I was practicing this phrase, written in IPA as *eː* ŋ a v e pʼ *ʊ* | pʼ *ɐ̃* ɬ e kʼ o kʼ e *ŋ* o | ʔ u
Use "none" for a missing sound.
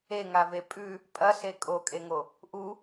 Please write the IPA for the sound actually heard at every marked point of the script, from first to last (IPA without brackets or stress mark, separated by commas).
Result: e, ʉ, ɐ, ŋ